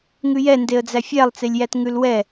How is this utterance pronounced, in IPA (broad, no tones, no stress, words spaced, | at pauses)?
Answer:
ŋʉjɛndeə̯d͡zæ fʲælˠt͡selʲjæt ŋʉlwɛ